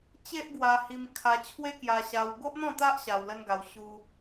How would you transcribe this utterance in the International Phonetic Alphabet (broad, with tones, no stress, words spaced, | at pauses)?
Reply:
t͡ɕe˦ʔɡwa˧hi˧m kʰa˧ t͡ɕʰwe˦kja˧ɕa˧w ɡo˦ʔn̪ɔ̃˥˧t̪a˦ʔ ɕa˧wlə˦nɡa˧w ɕu˧